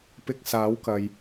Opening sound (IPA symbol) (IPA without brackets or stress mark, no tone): p